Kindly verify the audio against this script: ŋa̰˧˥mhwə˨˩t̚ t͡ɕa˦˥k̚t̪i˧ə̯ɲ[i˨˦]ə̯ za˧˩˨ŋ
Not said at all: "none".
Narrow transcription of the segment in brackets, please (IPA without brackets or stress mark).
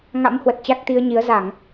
i˨˦